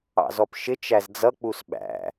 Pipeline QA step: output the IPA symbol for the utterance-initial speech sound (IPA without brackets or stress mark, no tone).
ɑ̰